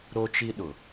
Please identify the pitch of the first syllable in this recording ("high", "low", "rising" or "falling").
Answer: high